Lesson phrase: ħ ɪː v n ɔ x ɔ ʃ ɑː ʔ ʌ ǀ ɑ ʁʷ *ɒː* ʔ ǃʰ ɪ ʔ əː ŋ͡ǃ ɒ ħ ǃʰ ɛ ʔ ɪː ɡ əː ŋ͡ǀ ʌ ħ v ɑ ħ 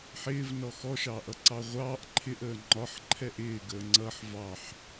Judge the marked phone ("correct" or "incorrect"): incorrect